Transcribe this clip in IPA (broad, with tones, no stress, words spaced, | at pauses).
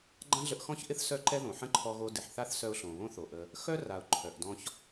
ɡ͡ǃã˦ɮə˧ʔxɔ̃˦çʔɪ˦θ sœ˦ǃɛ˦ ðõ˨ħə̃˦ǃʰɔ˧ɣo˧ dɪ˨ħθa˦θsœ˧ʊ̯ ɬõ˨βõ˦θo˨ʔə˧ | xœ˦ra˨ʊ̯ ǃʰœ˨ʔ dɔ̃˧ç